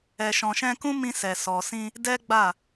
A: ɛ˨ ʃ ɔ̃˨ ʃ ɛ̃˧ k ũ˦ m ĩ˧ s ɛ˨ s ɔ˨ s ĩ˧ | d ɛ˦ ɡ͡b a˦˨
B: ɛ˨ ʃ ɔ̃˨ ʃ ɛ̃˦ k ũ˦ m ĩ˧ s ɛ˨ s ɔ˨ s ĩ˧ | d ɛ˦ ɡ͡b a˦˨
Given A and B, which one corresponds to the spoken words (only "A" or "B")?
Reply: A